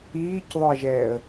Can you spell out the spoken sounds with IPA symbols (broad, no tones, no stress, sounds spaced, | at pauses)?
iː c ðˤ ʊ ə̯ ʒ ɛː ə̯